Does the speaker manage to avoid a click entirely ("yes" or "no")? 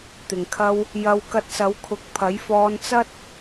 yes